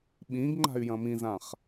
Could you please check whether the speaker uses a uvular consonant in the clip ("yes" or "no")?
yes